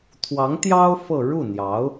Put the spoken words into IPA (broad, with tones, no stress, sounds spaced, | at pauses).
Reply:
t̪ʰ w ɑ˧˥ ŋ t̪ j ɑ˥ ʊ̯ f ɤ˥˧ ɻ u˥˩ n̪ j ɑ˧˥ ʊ̯